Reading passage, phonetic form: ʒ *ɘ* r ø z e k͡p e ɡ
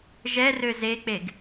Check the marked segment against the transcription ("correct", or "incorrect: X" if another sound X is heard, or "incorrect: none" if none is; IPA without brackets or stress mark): incorrect: ɛ